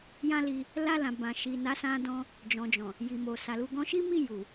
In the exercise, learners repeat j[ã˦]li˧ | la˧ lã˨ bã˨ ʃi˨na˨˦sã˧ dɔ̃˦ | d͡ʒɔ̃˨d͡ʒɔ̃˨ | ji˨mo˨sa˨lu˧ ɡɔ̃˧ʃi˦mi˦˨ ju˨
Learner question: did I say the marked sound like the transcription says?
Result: yes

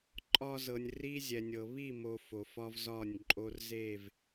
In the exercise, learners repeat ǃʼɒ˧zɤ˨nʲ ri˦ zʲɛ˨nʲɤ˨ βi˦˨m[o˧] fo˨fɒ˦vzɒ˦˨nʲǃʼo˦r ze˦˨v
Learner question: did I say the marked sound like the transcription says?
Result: no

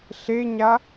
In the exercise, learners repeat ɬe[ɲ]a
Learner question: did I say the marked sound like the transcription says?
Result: yes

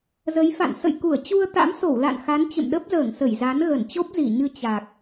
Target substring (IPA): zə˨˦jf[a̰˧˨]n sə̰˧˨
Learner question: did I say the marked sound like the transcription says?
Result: yes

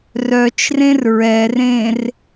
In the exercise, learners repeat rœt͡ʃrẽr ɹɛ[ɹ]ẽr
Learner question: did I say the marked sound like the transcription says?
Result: no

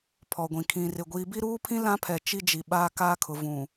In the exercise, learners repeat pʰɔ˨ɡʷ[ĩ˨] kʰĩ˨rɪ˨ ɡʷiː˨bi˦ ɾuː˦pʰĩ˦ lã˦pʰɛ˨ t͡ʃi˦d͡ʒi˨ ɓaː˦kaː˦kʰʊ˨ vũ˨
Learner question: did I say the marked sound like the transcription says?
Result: yes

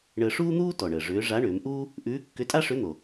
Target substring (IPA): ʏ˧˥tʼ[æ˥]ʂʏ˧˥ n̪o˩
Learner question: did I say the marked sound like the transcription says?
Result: no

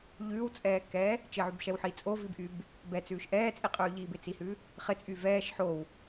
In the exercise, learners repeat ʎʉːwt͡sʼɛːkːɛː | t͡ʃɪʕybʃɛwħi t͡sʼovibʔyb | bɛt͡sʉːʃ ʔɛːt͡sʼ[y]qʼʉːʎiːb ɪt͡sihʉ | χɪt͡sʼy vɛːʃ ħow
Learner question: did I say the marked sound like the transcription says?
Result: no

